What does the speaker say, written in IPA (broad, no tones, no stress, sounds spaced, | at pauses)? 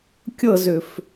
kʲ ɤ z ʏ f